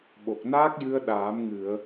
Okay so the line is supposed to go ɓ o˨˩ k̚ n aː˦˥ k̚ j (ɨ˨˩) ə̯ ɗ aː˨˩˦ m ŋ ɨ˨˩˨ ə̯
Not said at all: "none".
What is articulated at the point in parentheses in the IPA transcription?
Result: ɨ˧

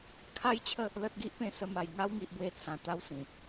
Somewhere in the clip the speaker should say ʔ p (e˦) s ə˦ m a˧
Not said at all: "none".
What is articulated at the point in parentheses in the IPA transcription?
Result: ẽ˦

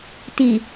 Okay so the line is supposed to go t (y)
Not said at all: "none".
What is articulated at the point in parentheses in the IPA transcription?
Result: i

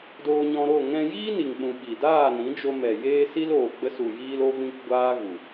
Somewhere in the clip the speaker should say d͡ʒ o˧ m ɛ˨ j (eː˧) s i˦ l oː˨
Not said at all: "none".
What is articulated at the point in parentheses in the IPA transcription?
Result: eː˦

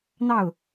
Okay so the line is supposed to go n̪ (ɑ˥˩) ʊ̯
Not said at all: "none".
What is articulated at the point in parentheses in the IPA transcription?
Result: ɑ˥˩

